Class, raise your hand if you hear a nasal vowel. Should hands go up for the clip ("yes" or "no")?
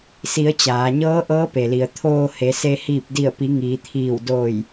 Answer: no